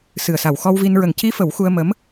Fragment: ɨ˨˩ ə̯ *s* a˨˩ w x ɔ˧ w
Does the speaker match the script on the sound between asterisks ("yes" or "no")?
yes